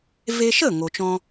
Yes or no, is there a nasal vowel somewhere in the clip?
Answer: yes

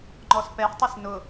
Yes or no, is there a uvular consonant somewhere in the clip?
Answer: no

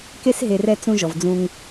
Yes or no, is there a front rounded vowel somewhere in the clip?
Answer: no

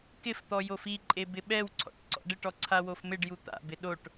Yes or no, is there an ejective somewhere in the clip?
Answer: yes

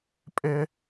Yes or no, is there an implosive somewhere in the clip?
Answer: no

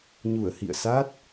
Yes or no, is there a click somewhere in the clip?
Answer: no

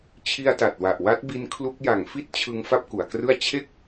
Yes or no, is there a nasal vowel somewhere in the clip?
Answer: no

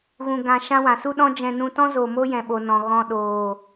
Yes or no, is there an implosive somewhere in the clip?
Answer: yes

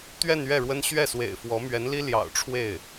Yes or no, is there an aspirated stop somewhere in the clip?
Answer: yes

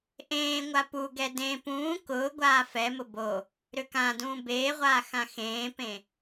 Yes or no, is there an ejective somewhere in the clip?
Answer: no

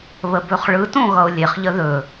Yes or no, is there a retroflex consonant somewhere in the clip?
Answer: yes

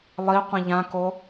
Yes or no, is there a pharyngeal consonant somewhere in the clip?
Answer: no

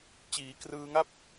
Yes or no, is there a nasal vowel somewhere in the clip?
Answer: no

